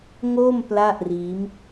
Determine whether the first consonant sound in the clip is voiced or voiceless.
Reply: voiced